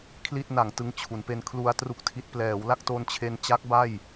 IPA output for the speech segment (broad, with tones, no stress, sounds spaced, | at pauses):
kʰ l i˥˩ t̚ n a˨˩ ŋ t ɯ˧ ŋ t͡ɕʰ u˩˦ n p e˧ n kʰ l u˧ a̯ t r u˥˩ k̚ tʰ i˦˥ t̚ p l ɛː˩˦ w l a˥˩ k̚ t o˧ n t͡ɕʰ e˧ n t͡ɕ a˦˥ k̚ b a˥˩ j